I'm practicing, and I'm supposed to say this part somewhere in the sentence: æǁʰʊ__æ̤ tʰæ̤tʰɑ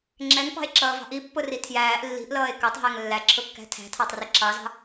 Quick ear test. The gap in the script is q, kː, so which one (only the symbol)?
kː